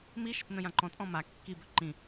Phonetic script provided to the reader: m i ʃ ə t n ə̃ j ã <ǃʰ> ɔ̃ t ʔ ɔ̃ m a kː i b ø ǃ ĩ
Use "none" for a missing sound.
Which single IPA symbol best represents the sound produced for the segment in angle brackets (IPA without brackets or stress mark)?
ǃ